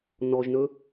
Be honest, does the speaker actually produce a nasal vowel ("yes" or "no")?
no